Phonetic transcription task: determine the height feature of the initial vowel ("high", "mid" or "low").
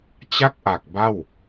low